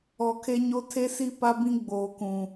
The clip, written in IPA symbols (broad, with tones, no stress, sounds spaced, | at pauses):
ɔ˨ kʰ e˦ ɲ o˦ tʰ e˦ s i˦ p a˦ b ĩ˦ ɡ͡b oː˨ k ũ˨